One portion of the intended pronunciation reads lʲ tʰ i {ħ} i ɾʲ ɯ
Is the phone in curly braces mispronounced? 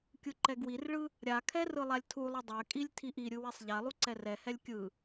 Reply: yes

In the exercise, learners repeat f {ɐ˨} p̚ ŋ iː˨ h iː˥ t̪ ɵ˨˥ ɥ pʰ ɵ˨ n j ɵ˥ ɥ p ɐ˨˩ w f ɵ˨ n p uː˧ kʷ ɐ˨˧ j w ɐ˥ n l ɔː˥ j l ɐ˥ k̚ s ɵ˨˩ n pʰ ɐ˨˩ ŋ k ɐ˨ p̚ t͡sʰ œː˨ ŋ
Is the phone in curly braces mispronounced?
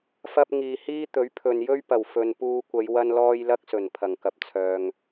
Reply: yes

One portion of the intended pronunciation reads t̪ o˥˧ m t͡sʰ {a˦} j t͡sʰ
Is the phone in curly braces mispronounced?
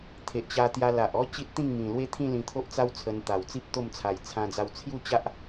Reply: yes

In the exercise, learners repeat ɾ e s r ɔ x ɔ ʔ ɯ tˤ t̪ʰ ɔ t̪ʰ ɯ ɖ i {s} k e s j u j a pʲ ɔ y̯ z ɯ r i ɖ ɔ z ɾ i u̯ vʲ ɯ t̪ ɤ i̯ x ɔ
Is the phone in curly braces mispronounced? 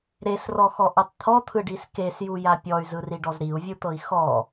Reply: no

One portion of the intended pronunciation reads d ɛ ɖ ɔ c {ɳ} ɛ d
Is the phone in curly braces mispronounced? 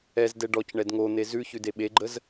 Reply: no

